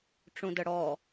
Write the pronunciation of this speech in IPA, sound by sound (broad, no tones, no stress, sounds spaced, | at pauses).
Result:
ʈ͡ʂ ũ d ə ɽ ɔ